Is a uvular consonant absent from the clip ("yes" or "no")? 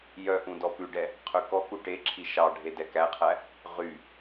no